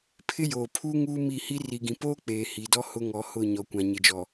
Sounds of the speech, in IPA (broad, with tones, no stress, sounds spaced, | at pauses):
pʰ ɪ˦ j oː˨ pʰ uː˦ ŋ uː˦ m i˦˨ h i˦ r i˨ ɡ ĩ˨ p oː˦ k͡p eː˨ h iː˨ d ɔ˦ h ʊ˦ ŋ ɔ˨˦ h ʊ˦˨ ɲ ɔ˨ kʷ ã˨ ɲ ɪ˨ d͡ʒ ɔ˨